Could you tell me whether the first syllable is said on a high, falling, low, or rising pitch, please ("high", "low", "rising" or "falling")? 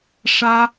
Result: high